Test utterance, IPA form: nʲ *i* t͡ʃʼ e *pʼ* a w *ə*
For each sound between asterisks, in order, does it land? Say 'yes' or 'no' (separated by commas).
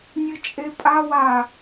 no, yes, no